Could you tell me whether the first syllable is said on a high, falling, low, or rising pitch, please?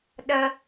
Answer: high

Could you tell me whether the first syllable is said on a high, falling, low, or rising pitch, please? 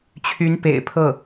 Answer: rising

